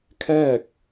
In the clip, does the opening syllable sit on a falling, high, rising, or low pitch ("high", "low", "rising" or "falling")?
falling